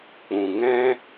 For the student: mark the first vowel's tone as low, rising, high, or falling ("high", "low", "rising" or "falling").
low